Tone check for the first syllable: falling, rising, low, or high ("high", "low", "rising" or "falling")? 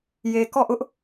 low